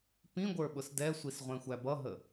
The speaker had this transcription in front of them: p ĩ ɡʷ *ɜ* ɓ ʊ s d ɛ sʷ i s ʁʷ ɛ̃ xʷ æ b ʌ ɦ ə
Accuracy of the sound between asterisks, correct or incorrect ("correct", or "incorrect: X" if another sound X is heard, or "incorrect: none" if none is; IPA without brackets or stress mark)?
incorrect: ə˞